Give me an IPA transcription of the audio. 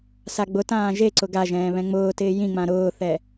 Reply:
s a ɡ͡b ʊ t ãː ʒ e ǀ ʊ ɡ a ʒ ɛ̃ː β ɛ̃ ŋ͡m ʊː t ɪː j ĩ ŋ͡m ã ɾ ʊː θ ɛ

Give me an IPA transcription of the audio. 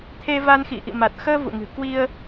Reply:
t̪ʰ e˧ v a˧ n x ḭ˧˨ ʔ ḭ˧˨ m a˨˩ t̚ x əː˧ v ṵ˧˨ ŋ ɨ̤˨˩ k w i˧ ə̯

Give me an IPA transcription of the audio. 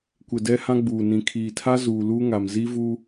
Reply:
kʷ ɪ˨ d ɛ˦ h ã˦ ɡ͡b uː˨ n ĩ˨ kʰ iː˨ tʰ a˦ z uː˨ l uː˦ ŋ a˨ m z i˦ v u˦

